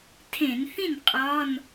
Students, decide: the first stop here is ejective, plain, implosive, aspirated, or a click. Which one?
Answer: aspirated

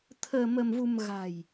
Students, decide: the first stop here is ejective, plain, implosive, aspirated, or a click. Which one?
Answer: aspirated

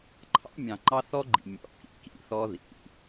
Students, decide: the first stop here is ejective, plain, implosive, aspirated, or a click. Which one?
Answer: click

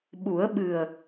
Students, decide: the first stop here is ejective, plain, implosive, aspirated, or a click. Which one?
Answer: implosive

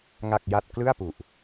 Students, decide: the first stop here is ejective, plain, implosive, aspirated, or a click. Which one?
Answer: plain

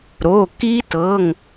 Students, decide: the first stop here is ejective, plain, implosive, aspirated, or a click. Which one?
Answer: plain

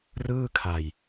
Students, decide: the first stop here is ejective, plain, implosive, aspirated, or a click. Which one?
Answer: aspirated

